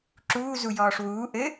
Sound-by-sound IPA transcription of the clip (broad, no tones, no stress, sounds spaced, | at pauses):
ǁ uː z u j ɔː ʂ w uː ʔ ɘ